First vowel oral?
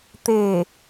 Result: yes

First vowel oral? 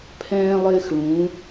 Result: no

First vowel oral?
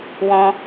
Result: no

